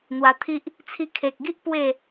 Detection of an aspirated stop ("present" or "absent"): present